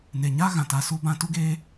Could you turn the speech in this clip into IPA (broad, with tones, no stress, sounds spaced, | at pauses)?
n e˨ ɲ a˦ ɣ ã˨ t a˧ s u˦ b ã˧ t u˦ ɡ eː˦